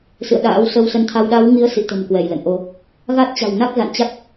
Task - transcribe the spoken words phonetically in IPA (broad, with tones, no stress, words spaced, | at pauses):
sɨ̰˧˨ə̯ɗa̰ː˧˥w sə˧wsə˧nt̪ʰa˧w ɗa˨˦wŋi˨˦ə̯ sḭ˧˨t̪ə̤˨˩m kwɛ˧˩jlə̰˧˨nʔo˧ | ɣa˦˥t̚t͡ɕa̤˨˩w na˦˥k̚za̰˧˨nt͡ɕa˦˥k̚